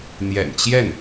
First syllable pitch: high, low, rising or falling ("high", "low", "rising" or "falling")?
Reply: low